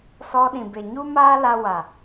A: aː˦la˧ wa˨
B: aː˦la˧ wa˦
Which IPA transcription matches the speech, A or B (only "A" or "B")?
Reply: A